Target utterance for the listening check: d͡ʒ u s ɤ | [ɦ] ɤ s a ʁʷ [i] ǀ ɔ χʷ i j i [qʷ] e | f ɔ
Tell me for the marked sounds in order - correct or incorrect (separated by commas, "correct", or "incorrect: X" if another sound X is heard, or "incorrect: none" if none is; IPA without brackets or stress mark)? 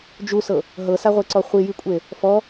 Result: correct, incorrect: e, incorrect: kʷʼ